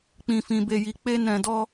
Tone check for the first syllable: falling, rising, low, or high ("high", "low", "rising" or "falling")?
low